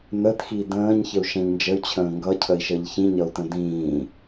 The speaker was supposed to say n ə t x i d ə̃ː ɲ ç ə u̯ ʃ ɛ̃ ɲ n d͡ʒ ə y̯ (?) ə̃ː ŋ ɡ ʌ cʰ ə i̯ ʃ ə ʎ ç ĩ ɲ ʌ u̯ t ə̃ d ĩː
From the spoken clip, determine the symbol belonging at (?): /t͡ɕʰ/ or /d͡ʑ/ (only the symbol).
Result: t͡ɕʰ